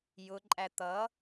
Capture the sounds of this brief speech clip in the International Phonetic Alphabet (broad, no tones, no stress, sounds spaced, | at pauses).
j ʊ ǃʼ æ t̪ ʌ